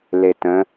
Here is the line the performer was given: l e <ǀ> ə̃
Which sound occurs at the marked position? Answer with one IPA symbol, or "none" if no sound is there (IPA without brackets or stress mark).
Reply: t